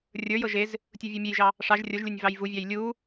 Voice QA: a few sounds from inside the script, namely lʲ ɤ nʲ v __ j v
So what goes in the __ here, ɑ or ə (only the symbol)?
ɑ